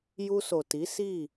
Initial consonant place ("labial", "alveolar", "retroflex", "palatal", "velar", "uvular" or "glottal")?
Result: palatal